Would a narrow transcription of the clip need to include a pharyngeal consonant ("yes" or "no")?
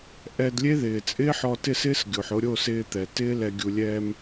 yes